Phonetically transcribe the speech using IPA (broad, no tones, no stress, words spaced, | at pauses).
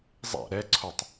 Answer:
zˤæ̰ ɾɛǀʰotˤ